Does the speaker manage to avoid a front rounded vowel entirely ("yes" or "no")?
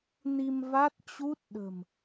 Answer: yes